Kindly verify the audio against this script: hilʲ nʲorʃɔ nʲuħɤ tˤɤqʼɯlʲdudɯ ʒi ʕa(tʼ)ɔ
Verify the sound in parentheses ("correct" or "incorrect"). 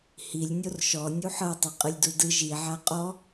incorrect